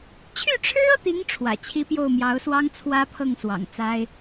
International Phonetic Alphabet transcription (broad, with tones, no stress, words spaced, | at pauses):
t͡ɕʰy˥˩ʈ͡ʂʰɻ̩˥ɤ˨t̪i˧˥ŋ ʈ͡ʂʰwä̰˨˩t͡ɕʰi˥pjo˥˩ʊ̯ mjɑ˧˥ʊ̯swɑ˥ŋ t͡sʰwä˥pʰɤ˥˩ŋswɑ̰˨˩ŋ t͡sa˥ɪ̯